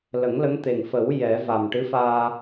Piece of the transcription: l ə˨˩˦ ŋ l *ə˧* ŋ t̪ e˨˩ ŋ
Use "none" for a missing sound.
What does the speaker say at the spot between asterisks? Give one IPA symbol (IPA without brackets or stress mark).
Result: ə˧˥